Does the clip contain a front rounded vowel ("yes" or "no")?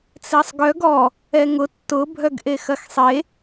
yes